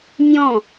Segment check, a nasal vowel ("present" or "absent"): present